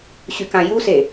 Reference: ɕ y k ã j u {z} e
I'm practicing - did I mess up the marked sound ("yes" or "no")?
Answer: yes